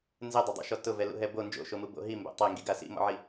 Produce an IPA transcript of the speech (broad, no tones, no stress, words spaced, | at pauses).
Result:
nzedˤodˤḭʃɔ tʊvɛlṵɦɛ bo nd͡ʒo̰ʃomubo̰ ɦimbɛ̰ tˤeŋɡiɡa sḭmɔ̰ʕi